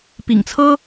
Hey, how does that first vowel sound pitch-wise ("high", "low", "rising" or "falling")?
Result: low